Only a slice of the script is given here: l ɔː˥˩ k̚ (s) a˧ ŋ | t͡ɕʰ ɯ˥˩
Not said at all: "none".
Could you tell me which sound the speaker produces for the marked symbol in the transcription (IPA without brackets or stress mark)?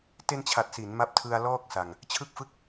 s